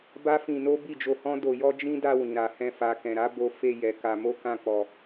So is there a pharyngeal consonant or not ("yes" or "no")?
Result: no